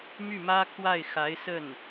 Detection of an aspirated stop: present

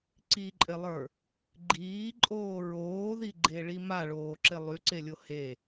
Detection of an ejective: present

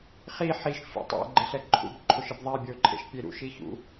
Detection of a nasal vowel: absent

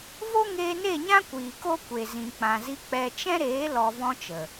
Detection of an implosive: absent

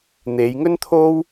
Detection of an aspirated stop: present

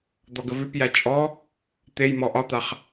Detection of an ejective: present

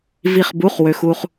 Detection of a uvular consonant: present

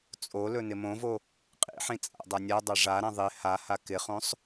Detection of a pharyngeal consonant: present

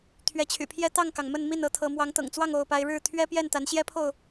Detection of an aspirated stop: present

